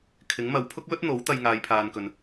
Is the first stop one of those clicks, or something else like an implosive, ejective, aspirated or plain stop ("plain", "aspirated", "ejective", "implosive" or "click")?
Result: aspirated